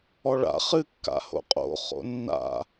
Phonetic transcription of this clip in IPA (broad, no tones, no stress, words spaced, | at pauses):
ɔɭa̰ χɨ kːa̰ho̰qʼo̰ χo̰nːa̰